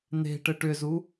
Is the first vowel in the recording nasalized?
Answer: no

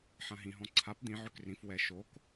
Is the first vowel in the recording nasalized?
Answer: yes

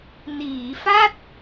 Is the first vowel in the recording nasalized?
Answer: no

